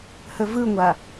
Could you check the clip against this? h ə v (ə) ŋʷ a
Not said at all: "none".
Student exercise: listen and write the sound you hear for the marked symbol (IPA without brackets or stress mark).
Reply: ɯ